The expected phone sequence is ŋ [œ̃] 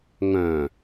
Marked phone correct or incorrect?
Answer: correct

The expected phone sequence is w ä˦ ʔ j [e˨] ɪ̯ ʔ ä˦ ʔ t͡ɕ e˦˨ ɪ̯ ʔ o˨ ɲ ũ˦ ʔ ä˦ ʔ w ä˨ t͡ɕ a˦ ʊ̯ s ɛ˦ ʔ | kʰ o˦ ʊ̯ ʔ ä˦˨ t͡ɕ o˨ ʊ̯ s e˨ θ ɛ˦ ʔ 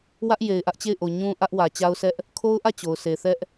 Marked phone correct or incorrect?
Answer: correct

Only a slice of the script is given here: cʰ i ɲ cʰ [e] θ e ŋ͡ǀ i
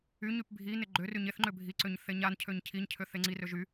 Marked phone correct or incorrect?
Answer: incorrect: ø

